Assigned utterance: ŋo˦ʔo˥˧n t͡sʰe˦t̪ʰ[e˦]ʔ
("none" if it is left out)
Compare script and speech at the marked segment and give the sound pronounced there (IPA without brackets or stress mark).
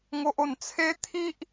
i˦